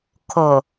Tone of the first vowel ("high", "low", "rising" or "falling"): low